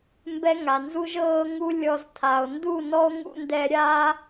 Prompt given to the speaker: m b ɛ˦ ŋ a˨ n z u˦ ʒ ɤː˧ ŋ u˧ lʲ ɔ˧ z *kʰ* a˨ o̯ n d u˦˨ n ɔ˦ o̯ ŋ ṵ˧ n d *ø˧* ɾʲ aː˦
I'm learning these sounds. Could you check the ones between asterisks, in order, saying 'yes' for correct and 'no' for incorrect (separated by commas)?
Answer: no, no